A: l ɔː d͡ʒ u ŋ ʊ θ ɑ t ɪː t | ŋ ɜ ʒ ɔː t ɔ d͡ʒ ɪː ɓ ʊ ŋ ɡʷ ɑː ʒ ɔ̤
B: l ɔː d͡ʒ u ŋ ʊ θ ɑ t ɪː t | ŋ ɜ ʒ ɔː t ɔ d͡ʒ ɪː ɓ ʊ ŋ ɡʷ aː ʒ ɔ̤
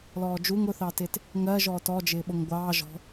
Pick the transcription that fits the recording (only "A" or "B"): A